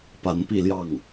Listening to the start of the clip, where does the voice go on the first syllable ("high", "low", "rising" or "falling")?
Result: rising